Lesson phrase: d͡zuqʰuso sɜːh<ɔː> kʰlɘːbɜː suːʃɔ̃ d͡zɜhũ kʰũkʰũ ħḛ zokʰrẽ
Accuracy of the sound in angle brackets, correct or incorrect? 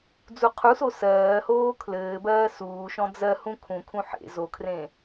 incorrect